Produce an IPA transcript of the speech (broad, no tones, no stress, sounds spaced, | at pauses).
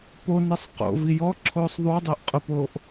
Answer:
p o n ɨ sˤ q o̰ v i j ɔ ǁʰ oː sˤ ðˤ u dˤ ʊː ʔ qʼ ʊ p oː ʔ